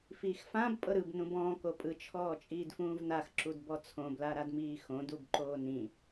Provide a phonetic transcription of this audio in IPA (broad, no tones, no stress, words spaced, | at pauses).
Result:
fiːxfãb pʼɤɾɯb nũbɔ̃ː kopʼɯ t͡ʃʰɔːt͡ʃʼiːdfũːvnax ǁudbɔt͡sʰõ blaɾadmiːxõd ubǃoːnĩ